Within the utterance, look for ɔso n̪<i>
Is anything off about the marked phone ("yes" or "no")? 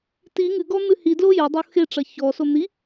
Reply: no